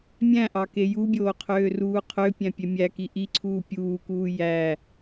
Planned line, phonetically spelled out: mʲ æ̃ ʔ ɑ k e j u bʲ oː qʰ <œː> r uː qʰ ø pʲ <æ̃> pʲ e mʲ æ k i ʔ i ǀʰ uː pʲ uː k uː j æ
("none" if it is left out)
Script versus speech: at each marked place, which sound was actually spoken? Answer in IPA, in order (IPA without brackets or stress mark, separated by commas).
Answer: øː, æ̃